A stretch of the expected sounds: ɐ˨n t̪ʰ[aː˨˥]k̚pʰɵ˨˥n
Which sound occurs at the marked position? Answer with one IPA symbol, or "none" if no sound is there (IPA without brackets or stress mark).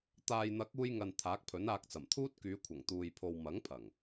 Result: aː˨˥